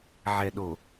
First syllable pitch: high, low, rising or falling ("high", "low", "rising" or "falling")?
low